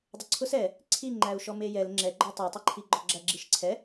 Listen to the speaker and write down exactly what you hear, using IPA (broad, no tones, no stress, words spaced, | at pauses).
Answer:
dˤʊǀʰʊs ɛ | ǀʰiŋ͡ǃæu̯ʃɔ mejɛl ŋ͡ǁɛɡ͡ǃɔ tˤɜtˤeǃʰi ɡ͡ǃɔɡ͡ǁæɡ͡ǁiʃǀʰɛ